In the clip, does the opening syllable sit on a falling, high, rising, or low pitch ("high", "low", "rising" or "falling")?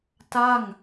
falling